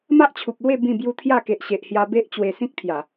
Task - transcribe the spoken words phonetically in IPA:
m a˦ ʔ t͡ɕʰ u˨ p̚ l w e˥˧ b ĩ˥˧ b j u˦ t̪ʰ j a˥˧ k e˨ ʔ ɕ e˨ ʔ h j a˧ b e˦ ʔ t͡ɕ w e˧ s ĩ˦ k̚ t̪ʰ j a˨˩

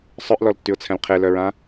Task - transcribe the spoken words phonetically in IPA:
sˤ œ ʔ l ɔ l tː y ʊ̯ t͡sʰ ɛ̃ l qʰ e l œ ɹ ã

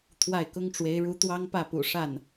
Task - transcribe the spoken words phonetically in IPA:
t̪ʰ w a˥˩ ɪ̯ k ʊ˥ ŋ ʈ͡ʂ w e˧˥ ɪ̯ ɻ u˧˥ t̪ w ɑ˥ ŋ p ä˥˩ p ṵ˨˩ ʂ a˥˩ n

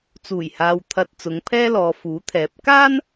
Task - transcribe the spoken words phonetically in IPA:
t͡s uː˨˩ j h aː˨ w t̪ʰ ɐ˨ t̚ t͡s ʊ˨˧ ŋ pʰ ɛː˥ l ɔː˨˧ f uː˨˥ t̪ʰ ɛː˨˥ p̚ k aː˥ n

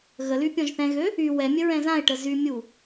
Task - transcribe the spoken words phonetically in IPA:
ɣ ə l y pʲ ɔ̃ ʒ θ ɛ̃ ɣ ø | y w ɛ mʲ ə ɹ ɛ̃ z ã ɪ̯ ʈ ə z y mʲ u

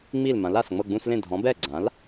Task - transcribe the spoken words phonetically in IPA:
ŋ͡m i˥˩ l m ã˩˥ l a˨˩ s ŋ͡m ɤ˥˩ ɡ͡b ũ˥˧ s l ẽ˥˩ dʱ ɔ̃˩˥ b ɛ˥˩ ɡ͡ǀ ã˩˥ l

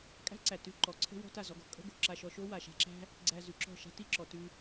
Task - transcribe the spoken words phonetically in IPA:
kʼ æ̤˦ ǀ æ˨ t ʉ˧ ǃ ɔ˨ ǀʰ ə̤˦ w ɔ̤˦ t a˦˨ z ɔ˧ ɡ ɔ̤˦ kʼ ə̤˦ ɡ o̤˨ ǁ a˧ ʃ ɔ˧ ʃ o˦ w a˨ ʃ a̤˧ ǁ æ̤˦ | ɡ͡ǀ æ˧ z ʉ˨ ǁ ɔ̤˦˨ ʃ a̤˧ t i˦˨ ǁ ɔ˨ t ʉ˧

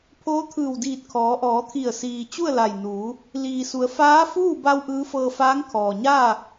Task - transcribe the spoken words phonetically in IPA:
pʰ oː˧˥ t̪ʰ ɯː˧˩ w d iː˧˩ t̚ kʰ ɔː˩˧ ʔ ɔː˩˧ t̪ʰ i˧˩ ə̯ s iː˩ t͡ɕ u˥˨ ə̯ l a˧˩ j n uː˩˧ | l iː˩ s u˩˧ ə̯ f aː˧˥ f uː˥˨ b a˧ w ʔ ɯː˧˥ f ɤː˧ f aː˧˥ ŋ kʰ ɔː˩ ɲ aː˥˨

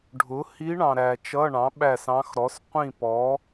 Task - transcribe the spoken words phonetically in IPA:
ɖʱ ʊ˩˥ h i˧˥ ɳ ɑ̃˨ ɾ æ˨ t͡ʃ ʌ˧˥˧ ɳ ɑ̃˩˥ ɓ æ˦˨ s ɑ̃˧˥ x ɾ ɔ˩˥ s qʷ ĩ˦˨ p ɔ˩˥

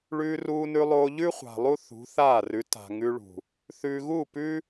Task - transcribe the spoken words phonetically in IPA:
ɭ ʉː˧ r uː˧ n ʉ˧ lˠ oː˧ ʎ ʉ˦ χʷ a̤˨ lˠ u˦ θ ṳ˨˦ θ aː˦˨ r ʉ˨˦ t a̤˨ ŋ ʉ˧ ɭ ṳ˨ | θ ʉː˨ ɣ uː˦˨ p ʉː˦

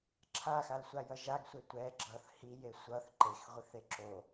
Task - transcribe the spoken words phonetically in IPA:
ǁʰ a x a l sʷ a j ʌ ʒ a ɡ sʷ e tʷ ɛ ɡ͡ǁ ʌ θ h i j e sʷ ʌ θ ǃ e x ʁʷ i θ e ǁ o

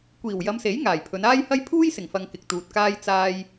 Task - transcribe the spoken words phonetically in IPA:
kʷ iː˨˩ w j ɐ˨˧ m s e˨˥ j ŋ aː˨˩ j pʰ ɵ˨˧ n aː˥ j h ɐ˥ j pʰ uː˥ j s ɪ˨˩ ŋ f ɐ˨ ŋ k ɪ˨ k̚ t̪ uː˨ t̚ k aː˥ j t͡s aː˧ j

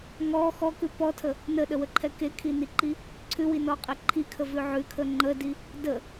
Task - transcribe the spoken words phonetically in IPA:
ŋ ɔ x ɔ k ʉ p ɔ tʰ ə | n ə ɗ ə w ə ǃʰ ɛ k e kʰ i n i ǃ i | ǀʰ ʉ w i n ɔ qʼ ɛ ǃʰ i kʰ ə v ʉ ʕ ʉ kʰ ə ŋ͡ǃ ə d i | d ə

